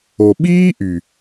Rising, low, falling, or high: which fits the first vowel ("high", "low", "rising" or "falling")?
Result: low